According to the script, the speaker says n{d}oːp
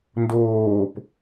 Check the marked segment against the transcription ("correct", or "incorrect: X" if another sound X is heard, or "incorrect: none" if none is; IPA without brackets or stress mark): correct